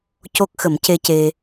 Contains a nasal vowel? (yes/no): no